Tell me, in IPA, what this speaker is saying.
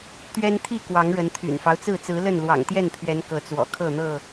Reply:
t̪ ɥ ɛ˦ n t̪ʰ i˥˨ k w ɑ˨˦ ŋ ɻ ə˨˦ n t̪ʰ y̰˨˩ n f ɑ˦ ʊ̯ t͡s ɹ̩˥˨ t͡s ɹ̩˨˦ l ə˥˨ n l w ɑ̰˨˩ ŋ t̪ j ɛ˥˨ n pʰ ɥ ɛ˨˦ n k ɤ˨˦ t͡s w ɔ̰˨˩ kʰ ɤ˥˨ n̪ ɤ˥˨

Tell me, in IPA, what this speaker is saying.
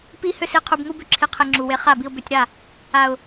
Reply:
p i˦ h ʏ˦ s i˧ qʰ u˧ b ŋ u˦ b ʏ˧ ǁʰ i˧ qʰ e˧ ŋ͡ǁ u˨ w e˧ χ a˦˨ b i˧ ʊ̯ b ʏ˧ tʲ ɾ a˦˨ | a˨ ʊ̯

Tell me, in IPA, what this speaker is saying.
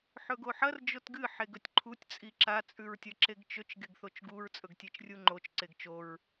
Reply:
ħ ɵ ɡ o ħ ɐ r d͡ʒ o t ɡ ɨ ħ e ɡ ɵ tʲ ǃʰ u tʲ t͡sʼ i ǁ a t͡sʼ ʉ ɹ tʲ ɐ ǁ e ɡ t͡ʃ ɵ t͡ʃ ɡ e ɡ θ o t͡ʃ ɡ u ɹ t͡sʼ ɵ ɡ tʲ e t͡ʃ rʲ u ŋ͡ǃ o t͡ʃ ǀ e ɡ t͡ʃ o ɹ

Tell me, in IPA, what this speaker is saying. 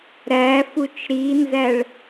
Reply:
ɾ æ f u t͡ʃ ɾ i n z æ ɭ

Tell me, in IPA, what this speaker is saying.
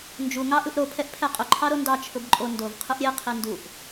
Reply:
n d͡ʒ u ŋ ɑ ʔ ɯ ʔ ɾ o pʰ ɛ ʔ pʰ ɛ qʼ ʊ ǃʰ ɑ ɾ o n d ɑ t͡ʃʰ ʊ b ǃʼ o n d o v qʰ ɯ ʔ ɾʲ e qʰ i n d u ʔ

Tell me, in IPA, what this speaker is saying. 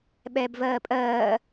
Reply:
ɓ ɛː b v ɜː pʼ ɜː

